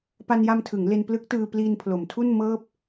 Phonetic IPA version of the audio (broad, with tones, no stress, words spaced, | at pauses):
pa˧nja˧mtʰɯ˩˦ŋ le˧nplɯ˦˥k̚tɯː˧ pliː˧npʰlo˩˦mtʰu˥˩nmɤː˥˩p̚